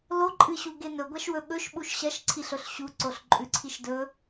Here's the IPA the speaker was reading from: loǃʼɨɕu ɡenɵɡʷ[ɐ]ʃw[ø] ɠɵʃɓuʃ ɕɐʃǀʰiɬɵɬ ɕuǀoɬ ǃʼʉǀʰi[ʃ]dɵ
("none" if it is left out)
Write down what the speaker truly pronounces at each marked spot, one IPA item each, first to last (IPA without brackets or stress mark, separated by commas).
a, ɵ, ʃ